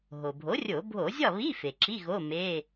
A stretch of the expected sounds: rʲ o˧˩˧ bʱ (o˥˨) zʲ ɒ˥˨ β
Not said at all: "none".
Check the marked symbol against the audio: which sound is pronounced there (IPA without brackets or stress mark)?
o˧˩˧